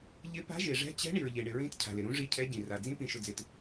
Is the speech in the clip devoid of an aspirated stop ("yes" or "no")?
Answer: no